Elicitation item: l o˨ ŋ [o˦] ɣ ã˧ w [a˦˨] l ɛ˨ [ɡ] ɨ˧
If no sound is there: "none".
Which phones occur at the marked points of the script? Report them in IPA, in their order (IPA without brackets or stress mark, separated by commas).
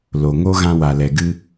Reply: o˦, a˨, ɡ